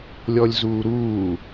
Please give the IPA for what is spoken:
lʲ ɔ lʲ z uː ɾ uː

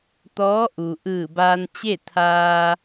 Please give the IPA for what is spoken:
t̪ ɔː˧˥ ʔ u˩ ʔ ɯː˧˩ b aː˧ n t͡ɕ e˥˨ t̪ʰ aː˧

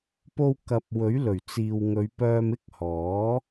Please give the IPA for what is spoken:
p o˧ w k ɐ˨ p̚ w ɵ˨˥ ɥ l ɵ˨˩ ɥ t͡s iː˨ w ŋ ɵ˨˧ ɥ p œː˧ m ɪ˥ k̚ h ɔː˨˥

